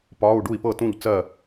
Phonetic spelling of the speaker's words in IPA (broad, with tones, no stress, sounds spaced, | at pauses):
p ɒ˧˥˧ u̯ ɖ u˥˨ i̯ p ɤ˥˨ t ũ˥˨ ʎ t͡s ɜ˥˨